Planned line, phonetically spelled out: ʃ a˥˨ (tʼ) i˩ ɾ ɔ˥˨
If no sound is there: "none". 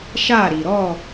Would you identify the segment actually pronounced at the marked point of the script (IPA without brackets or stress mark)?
ɾ